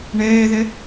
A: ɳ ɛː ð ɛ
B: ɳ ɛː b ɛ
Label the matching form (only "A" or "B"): A